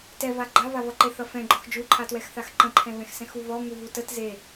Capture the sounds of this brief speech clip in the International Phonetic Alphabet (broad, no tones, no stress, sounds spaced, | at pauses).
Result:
t ɛ v a ɡ͡ǃ a v a v ʌ ǃ e θ ʌ f ɛ̃ ɡ͡ǃ ɔ x d͡ʒ u ǃʰ a t w ɛ x θ a x ǃ ə̃ ǃʰ ɛ̃ v ɛ̃ x s ɛ̃ x u v ɔ ŋ u v u t ə t z e